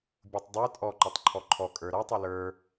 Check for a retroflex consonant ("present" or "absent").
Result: absent